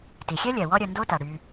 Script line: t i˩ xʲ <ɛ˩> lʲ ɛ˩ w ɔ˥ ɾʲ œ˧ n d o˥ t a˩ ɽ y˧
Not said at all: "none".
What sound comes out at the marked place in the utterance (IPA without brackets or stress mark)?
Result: ɛ˥